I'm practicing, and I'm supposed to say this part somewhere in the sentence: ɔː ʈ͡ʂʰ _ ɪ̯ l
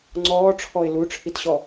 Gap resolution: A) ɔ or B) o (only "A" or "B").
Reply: A